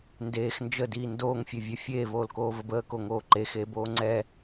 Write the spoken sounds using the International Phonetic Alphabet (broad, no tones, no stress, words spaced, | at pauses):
ndeːx nd͡ʒədiː ndoːŋfʲevʲø fʲeːvoːlkoːvəb əːkoŋoː ǃexeːboː ŋ͡ǀɛ